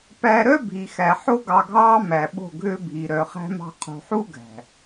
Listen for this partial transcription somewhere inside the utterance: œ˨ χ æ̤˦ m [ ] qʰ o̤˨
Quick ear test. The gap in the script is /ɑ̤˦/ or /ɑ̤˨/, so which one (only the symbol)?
ɑ̤˦